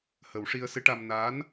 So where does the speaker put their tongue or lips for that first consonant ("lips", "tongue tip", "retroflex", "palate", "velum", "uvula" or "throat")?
throat